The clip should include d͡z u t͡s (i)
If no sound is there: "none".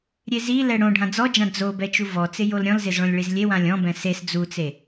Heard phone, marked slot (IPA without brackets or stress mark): e